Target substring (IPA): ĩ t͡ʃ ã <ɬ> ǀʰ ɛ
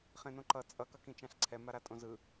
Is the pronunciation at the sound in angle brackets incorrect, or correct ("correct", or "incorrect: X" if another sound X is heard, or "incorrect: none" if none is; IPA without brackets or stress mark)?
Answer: correct